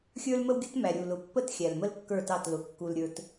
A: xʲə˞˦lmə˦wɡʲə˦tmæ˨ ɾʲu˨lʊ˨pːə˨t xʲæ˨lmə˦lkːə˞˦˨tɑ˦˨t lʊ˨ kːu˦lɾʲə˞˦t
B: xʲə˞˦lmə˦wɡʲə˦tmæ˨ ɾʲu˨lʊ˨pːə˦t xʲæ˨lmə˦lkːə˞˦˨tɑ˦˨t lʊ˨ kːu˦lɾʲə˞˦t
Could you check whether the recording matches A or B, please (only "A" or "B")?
B